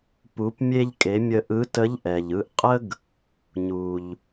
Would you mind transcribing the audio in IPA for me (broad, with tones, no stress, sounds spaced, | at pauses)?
p u˩˧ p mʲ e˧ ʎ kʼ e˩˧ mʲ ə˧ ʔ ɯ˧˥ t ə˧˥ ʎ ʔ ɛ˩ ʎ ɯ˧˥ ʔ qʼ ə˥ ɡ | ɲ u˩ ʎ